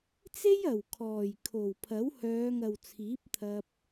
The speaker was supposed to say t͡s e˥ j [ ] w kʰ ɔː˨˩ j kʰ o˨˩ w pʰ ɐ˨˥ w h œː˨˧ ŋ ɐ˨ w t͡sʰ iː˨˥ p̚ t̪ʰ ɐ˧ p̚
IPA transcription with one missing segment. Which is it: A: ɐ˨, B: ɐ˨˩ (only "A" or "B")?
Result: B